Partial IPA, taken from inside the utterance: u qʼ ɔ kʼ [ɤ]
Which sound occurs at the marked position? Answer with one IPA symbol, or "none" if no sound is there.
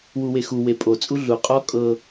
ɤ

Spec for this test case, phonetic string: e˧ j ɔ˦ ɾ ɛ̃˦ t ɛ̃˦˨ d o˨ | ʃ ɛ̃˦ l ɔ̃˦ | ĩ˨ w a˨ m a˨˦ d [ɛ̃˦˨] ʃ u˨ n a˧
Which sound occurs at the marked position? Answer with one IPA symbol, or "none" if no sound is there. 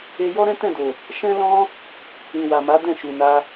ɛ̃˦˨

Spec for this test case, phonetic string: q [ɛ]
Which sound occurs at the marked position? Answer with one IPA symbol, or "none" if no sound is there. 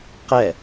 ɛ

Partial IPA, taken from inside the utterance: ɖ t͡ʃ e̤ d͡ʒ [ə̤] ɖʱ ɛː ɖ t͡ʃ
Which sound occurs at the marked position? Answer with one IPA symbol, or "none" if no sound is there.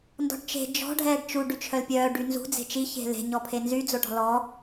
ɔ̤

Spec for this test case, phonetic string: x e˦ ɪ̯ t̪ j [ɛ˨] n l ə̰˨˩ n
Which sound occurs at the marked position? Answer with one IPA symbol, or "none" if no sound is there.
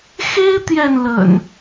ɛ˨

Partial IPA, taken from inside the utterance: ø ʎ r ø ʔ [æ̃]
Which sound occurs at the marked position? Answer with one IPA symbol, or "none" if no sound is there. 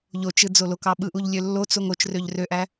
æ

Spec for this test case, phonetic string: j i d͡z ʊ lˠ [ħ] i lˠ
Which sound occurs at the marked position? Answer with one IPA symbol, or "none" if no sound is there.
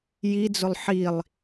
ħ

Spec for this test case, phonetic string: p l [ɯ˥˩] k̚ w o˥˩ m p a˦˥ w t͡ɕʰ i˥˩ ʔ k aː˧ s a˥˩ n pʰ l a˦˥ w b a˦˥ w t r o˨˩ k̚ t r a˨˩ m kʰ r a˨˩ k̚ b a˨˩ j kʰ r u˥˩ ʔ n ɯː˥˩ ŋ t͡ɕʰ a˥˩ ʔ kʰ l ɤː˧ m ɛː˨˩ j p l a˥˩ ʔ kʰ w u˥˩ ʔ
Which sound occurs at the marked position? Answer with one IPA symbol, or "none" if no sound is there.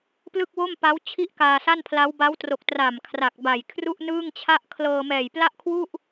ɯ˥˩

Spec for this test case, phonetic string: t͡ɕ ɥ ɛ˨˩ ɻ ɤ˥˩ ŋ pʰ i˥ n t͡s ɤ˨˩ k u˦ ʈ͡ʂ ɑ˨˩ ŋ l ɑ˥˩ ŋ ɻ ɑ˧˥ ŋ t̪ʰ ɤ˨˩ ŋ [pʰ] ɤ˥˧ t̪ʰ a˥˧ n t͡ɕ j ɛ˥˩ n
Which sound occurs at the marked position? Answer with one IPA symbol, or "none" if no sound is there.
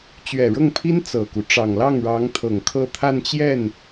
kʰ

